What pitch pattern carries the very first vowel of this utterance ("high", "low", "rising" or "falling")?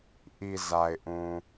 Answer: low